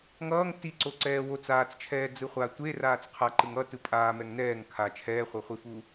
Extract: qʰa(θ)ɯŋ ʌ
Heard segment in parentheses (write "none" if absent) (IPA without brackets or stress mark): ǃ